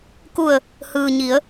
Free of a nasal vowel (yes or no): yes